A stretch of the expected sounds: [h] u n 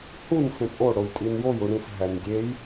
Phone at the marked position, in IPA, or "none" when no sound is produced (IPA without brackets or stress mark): h